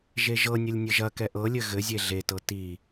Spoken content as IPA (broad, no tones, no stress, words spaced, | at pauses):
ʒeʒɤnʲəlʲ nʲɘʒɐkɛ ʔɤlʲɘ ɣɘzʲe ɮetɤ ti